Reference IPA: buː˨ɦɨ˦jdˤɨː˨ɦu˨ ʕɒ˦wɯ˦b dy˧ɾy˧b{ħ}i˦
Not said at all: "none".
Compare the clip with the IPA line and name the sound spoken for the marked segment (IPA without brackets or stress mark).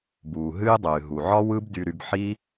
ħ